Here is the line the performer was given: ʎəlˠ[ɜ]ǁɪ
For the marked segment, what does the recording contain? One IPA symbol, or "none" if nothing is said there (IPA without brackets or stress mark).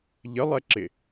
ɛ